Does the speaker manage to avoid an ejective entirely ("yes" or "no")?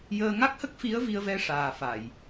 yes